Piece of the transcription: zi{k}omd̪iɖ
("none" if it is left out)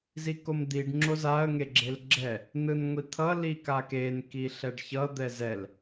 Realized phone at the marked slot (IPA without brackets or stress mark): k